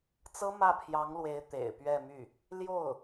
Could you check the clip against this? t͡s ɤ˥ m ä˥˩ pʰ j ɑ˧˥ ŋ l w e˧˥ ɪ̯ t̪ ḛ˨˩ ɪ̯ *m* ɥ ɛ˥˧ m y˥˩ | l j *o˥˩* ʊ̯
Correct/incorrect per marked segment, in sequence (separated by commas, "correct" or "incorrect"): incorrect, correct